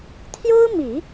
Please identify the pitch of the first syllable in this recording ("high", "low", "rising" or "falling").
high